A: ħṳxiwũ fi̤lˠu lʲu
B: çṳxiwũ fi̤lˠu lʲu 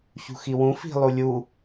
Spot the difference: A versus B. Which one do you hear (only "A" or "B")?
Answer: B